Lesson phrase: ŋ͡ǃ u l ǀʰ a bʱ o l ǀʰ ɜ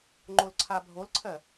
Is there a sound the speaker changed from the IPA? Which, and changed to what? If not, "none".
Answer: u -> o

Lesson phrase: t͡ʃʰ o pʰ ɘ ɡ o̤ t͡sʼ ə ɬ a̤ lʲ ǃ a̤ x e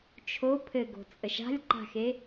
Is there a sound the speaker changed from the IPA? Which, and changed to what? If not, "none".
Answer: ɬ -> ʃ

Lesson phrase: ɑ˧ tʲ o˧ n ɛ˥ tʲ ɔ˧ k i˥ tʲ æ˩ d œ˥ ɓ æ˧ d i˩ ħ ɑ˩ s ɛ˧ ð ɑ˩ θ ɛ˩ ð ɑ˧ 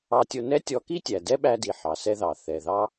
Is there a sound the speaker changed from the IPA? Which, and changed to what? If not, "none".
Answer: œ˥ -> ɛ˥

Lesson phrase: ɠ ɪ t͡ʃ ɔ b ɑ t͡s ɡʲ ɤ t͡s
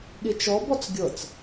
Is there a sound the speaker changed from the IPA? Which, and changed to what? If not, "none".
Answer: ɑ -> ɔ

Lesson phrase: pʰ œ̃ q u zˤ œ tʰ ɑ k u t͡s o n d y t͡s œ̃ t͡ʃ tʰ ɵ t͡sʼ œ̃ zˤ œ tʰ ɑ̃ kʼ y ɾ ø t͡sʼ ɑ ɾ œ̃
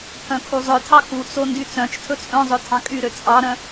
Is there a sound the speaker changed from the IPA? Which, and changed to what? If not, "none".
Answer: q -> kʰ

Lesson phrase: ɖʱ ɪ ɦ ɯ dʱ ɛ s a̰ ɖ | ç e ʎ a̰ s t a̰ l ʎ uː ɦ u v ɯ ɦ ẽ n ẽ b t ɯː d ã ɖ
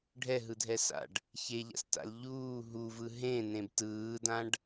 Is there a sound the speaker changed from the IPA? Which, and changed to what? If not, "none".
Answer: ɪ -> ɛ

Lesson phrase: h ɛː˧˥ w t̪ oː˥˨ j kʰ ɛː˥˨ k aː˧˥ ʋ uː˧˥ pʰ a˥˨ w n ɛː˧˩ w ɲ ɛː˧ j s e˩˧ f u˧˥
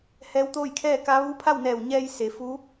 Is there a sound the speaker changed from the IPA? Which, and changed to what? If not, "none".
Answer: aː˧˥ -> a˧˥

